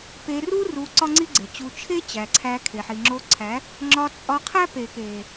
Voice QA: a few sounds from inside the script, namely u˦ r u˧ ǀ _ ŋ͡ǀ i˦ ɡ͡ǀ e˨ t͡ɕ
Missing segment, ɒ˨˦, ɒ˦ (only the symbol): ɒ˦